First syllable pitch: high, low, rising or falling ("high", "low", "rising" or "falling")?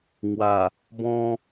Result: low